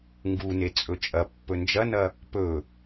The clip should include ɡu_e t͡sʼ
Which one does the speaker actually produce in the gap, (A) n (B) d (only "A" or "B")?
A